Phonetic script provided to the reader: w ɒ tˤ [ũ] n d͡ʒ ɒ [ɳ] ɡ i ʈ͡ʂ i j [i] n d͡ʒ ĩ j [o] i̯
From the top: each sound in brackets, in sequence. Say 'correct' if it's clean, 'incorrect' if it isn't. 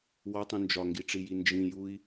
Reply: correct, incorrect: ŋ, correct, incorrect: u

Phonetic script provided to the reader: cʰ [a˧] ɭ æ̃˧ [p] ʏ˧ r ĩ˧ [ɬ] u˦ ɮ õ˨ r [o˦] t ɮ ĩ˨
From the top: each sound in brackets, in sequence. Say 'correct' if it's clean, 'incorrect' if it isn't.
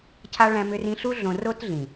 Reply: correct, incorrect: m, correct, correct

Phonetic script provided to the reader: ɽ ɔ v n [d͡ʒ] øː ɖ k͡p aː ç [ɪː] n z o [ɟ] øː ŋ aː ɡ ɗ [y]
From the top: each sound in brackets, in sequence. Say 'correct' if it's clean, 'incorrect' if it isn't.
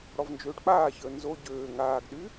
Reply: correct, incorrect: əː, correct, correct

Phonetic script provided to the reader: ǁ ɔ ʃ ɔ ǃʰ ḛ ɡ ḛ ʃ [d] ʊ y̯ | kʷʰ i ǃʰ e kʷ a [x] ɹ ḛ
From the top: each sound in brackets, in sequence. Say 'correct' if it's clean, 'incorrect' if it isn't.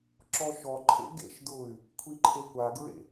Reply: correct, incorrect: ɡ

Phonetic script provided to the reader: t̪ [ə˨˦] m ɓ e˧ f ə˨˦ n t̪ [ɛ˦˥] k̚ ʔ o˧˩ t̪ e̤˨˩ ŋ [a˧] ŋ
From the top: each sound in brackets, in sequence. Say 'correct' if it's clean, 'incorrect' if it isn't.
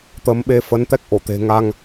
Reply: correct, correct, correct

